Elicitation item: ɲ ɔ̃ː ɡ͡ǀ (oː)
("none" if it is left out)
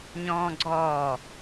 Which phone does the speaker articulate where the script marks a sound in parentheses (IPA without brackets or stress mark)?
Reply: ɔː